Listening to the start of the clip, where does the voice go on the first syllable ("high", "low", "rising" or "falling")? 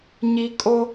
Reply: high